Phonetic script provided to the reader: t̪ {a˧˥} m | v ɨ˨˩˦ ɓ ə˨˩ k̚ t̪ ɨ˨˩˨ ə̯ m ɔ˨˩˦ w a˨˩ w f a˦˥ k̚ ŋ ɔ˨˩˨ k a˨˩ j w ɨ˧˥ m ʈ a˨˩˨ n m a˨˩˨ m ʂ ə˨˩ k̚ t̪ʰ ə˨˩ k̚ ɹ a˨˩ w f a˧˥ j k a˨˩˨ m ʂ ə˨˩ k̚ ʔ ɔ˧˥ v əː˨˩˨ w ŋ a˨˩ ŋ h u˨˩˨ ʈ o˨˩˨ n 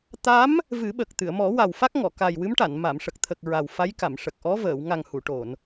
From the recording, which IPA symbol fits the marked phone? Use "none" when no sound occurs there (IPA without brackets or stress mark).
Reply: a˧˥